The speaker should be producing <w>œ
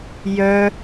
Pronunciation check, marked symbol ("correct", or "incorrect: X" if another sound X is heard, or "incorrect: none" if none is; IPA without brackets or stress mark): incorrect: j